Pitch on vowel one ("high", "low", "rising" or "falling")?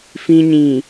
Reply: high